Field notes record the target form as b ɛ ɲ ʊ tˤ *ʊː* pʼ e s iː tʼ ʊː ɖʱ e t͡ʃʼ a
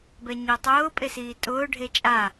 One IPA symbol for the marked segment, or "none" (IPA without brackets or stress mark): ʊː